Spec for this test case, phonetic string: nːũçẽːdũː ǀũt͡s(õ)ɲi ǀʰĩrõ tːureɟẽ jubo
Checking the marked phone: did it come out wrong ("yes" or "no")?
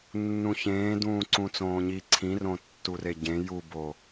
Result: yes